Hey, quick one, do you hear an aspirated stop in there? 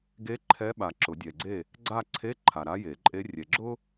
yes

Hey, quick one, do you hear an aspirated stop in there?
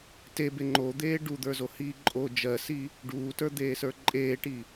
no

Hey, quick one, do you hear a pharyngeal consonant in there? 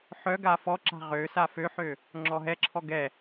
yes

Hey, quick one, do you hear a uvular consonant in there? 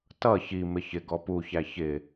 no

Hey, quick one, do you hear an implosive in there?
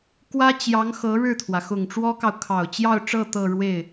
no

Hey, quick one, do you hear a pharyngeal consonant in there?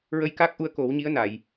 no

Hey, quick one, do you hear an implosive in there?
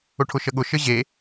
yes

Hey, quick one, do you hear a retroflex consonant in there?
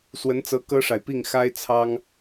yes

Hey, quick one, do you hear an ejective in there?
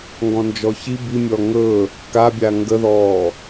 no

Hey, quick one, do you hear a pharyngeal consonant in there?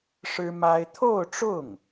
no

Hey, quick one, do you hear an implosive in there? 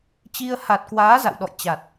yes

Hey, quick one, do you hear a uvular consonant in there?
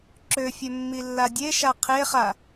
yes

